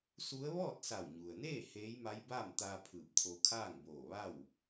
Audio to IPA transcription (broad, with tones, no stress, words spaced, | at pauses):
su˧˥ə̯ ʋɔː˥˨t̚sa˧˩wɲu˩ə̯neː˥˨ heː˧˥jma˧˥jbaː˥˨mt̪aː˧ pʰɯː˧˩p̚t̪ʰo˧ kʰaː˥˨ŋboː˧˩ʋa˥˨w